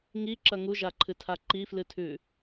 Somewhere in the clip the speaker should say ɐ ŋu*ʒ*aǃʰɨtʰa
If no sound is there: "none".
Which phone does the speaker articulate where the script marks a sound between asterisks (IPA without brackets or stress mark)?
ʒ